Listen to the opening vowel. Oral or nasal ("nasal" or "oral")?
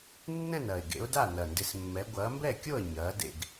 nasal